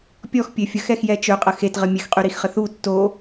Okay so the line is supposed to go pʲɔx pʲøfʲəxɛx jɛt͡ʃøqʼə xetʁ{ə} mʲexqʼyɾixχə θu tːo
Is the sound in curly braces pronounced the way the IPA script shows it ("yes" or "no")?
yes